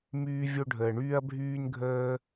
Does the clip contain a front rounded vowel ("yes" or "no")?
yes